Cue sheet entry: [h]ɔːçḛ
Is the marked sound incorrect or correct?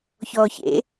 incorrect